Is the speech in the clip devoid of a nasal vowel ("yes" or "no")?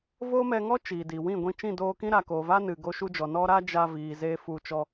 no